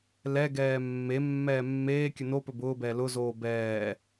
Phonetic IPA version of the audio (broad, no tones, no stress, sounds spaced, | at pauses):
l ɛ ɡ ɛː mː e mː ɛː mː eː kʲ ɵ n o p ɵ b ʊː b ɛː l ʊ z oː b ɛː